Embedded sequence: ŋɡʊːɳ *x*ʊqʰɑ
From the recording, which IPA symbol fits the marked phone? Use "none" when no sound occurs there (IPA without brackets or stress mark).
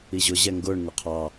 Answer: ŋ